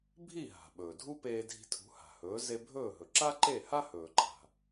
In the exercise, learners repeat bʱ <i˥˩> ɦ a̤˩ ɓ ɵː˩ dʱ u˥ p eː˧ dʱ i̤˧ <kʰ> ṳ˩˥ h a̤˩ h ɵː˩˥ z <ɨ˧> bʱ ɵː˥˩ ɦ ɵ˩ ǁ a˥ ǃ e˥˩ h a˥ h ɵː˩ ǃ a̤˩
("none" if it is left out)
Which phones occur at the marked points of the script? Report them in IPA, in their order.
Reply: i˥˩, tʰ, e˧

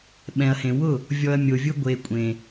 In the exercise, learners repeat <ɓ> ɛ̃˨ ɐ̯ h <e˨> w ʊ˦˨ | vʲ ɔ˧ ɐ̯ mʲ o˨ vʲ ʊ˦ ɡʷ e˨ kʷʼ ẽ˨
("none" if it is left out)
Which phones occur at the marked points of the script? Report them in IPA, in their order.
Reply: ɓ, ẽ˨

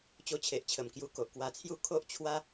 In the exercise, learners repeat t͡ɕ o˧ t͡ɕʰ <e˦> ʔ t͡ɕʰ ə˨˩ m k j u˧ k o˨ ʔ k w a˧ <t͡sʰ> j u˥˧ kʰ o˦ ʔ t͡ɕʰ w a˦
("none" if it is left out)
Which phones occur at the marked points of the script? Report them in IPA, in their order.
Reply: e˨, t͡sʰ

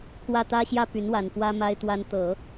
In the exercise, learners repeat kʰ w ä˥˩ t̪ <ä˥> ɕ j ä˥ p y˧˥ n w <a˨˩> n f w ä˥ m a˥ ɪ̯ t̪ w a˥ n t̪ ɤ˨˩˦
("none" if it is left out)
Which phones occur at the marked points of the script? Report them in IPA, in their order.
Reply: ä˥, a˨˩

